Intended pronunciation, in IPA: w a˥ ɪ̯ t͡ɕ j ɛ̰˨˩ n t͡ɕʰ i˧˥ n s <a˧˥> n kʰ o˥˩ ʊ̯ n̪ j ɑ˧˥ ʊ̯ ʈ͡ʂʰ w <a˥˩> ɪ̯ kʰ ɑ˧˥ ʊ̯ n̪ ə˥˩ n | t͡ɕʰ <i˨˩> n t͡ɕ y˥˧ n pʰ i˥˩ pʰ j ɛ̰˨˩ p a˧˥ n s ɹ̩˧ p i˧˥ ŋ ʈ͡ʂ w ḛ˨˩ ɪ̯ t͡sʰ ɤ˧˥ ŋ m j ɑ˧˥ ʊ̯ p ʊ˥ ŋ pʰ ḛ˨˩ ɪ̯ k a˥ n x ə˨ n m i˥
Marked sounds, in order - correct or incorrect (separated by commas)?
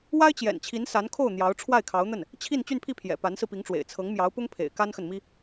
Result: correct, correct, incorrect